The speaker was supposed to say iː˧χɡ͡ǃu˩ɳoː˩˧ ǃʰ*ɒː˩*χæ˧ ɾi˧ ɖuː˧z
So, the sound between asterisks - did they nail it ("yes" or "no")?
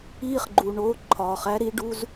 yes